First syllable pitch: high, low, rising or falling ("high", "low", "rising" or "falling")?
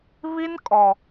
high